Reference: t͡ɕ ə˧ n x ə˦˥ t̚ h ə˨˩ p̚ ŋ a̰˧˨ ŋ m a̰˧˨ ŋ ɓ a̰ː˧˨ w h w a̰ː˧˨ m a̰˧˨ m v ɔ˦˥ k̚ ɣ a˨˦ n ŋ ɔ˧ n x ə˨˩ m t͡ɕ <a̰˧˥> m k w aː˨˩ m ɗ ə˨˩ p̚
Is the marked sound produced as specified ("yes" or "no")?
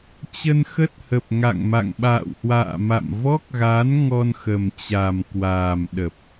no